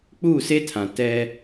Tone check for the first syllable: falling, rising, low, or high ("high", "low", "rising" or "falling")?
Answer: falling